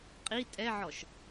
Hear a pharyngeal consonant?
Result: yes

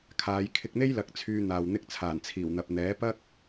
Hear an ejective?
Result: no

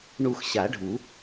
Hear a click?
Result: no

